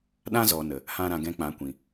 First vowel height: low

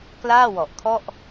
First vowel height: low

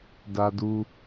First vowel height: low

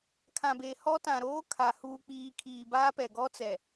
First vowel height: low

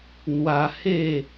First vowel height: low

